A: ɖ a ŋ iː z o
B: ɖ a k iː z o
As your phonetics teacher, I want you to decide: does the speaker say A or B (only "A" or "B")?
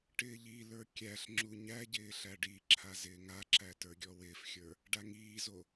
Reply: A